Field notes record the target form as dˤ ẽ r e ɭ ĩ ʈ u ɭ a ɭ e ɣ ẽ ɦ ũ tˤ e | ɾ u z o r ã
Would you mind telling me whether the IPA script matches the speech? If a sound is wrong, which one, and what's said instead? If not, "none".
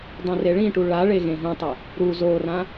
none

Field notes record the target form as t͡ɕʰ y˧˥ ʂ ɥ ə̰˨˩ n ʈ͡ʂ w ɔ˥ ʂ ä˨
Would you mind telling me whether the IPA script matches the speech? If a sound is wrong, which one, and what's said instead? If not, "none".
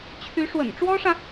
ɥ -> w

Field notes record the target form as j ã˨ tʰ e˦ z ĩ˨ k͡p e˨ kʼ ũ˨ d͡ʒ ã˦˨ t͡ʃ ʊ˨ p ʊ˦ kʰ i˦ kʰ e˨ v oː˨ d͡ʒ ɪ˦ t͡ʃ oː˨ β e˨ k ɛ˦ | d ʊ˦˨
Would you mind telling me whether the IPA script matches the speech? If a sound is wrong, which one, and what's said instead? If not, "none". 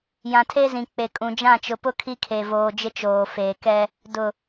β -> f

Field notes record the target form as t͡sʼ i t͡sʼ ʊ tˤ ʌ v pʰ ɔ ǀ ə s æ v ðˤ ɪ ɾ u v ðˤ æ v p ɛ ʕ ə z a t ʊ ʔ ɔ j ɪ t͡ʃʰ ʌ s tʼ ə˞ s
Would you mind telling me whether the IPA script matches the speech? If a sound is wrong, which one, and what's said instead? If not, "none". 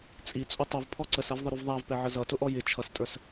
a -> ʌ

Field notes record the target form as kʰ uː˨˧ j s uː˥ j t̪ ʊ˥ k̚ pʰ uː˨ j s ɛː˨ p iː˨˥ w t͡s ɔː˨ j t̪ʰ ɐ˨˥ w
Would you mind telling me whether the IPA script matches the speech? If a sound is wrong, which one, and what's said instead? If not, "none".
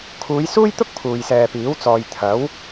none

